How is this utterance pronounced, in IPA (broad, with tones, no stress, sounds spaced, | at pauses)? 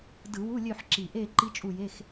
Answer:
d ɯ˧˩˧ w u˧˥˧ lʲ ø˦˨ ħ ǁ i˨˩ ʔ e˦˨ ǃ i˦˥ t͡ʃʼ u˦˨ j e˧˥˧ x